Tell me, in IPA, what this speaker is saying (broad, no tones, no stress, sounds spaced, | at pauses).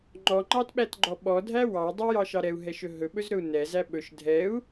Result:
ŋ͡ǃ ɔ ŋ͡ǃ ɑ t ɓ æ t ɡ͡ǃ ɔ ɓ ɔ dʱ æ w ɑ i̯ dˤ ɛ j ɑ ʃ ɑ ɾ ɛ u̯ ɦ ɛ ʃ ɵ ɦ ɵ ɓ ɵ z ɾ ɵ u̯ n ɛ z æ ɓ ɵ ʃ dʱ ɛ u̯